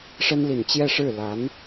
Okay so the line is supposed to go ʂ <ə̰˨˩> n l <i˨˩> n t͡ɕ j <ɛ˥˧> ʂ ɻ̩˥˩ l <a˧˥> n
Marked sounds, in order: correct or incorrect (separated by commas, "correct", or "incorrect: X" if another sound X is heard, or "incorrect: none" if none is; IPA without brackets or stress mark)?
incorrect: ə˥, correct, correct, correct